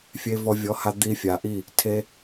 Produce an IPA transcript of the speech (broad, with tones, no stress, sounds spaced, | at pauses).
fʲ e˧ v ɔ˧ vʲ ɔ˨˦ h a˧ d̪ i˧ fʲ a˨ ʔ i˦˨ | tʰ e˧